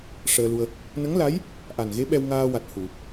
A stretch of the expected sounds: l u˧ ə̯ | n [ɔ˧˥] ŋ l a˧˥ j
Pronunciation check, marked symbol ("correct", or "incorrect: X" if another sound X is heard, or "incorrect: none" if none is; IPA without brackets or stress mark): incorrect: ə˧˥